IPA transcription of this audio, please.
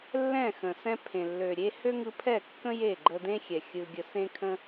lːɛ̃˦˨ xə̃˨sɛ̃˦ pʰẽ˨lːø˨ ɾʲe˦ hø˦ŋɯ˧pʰɛ˦˨kːə̃˦ je˦˨ɡ͡ǃə˧d̪ẽ˦xʲɛ˨ xʲɯ˧ɡʲə˧ sẽ˦kʰə̃˦

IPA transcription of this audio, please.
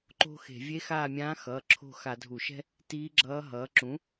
ǃo̤˥xe̤˧˩˧ vʲe˧˥xaː˦˨mʲãː˧˥ xʌː˩˧˩ǁʰo̤˦˨ xa˧˩˧dʱu˧˩˧ʃɛ̤˥ | tiː˧˥ɡ͡ǁʌː˧˥ɦʌː˩˥ ǁũ˩˥

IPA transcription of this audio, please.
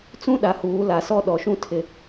t͡sũ˦ɗa˨huː˨˦ la˨sɔ˦ ɗɔ˨ʃũ˦ tʰɪ˨

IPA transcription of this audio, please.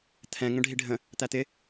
t̪ʰɛ̃ ŋə̃ɖʱiɖʱə̃ | t̪æt̪ɪ

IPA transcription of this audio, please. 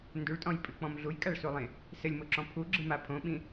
nduɭtʼɔ̃jpʼɨk͡pɔ̃m ɮujkʼaɭsulˠẽ | sɘlʲmoǁɔ̃ pʰuɡ͡ǁɨma pʰõɓĩ

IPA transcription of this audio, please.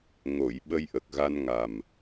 ŋo˨˩˨j ɓə˧jʔə˨˩k̚ɣa˧nŋa˨˩m

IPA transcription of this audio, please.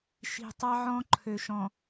ʃi̤˨tˤɑ˦ʕɔ̃˦ ǃʰø˨ʃɔ̃˨

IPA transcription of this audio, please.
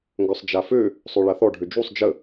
ŋɡœsˤd͡ʒafø | sˤøɭaθɔ ɖʱød͡ʒusˤ d͡ʒə

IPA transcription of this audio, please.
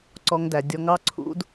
ǀɔ˧ŋdæ˨dʲɔ˧ŋɑ˦ ǀʰṵ˦d

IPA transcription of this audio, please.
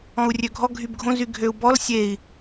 ɔ̃u̯rʲøɡʱɔ ɡʱybɡʱõ zyɡʱøu̯bɔl sʲei̯

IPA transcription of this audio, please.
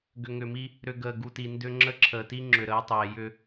ɡʏ˨ŋʏ˨mi˦ | ɾʏ˨ ɡəː˨ ɡu˨ti˨ndʏ˦ ŋ͡ǁə˦˨ǁʰəː˨ti˦ ŋ͡ǁʏ˨ɾəː˨˦tˤeː˨ jʏ˦

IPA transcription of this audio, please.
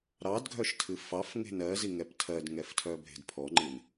ɾɑdɡʱœʃtʰɨ fɑfŋe̤n ɜziŋɛp tʰɜdŋɛftʰœbʱe̤d pʰɔŋ͡ǃɨn

